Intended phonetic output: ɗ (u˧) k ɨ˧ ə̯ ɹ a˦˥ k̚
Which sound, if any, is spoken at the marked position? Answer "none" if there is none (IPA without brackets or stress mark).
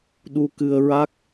u˧